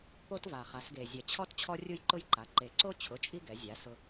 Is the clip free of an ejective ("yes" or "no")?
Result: no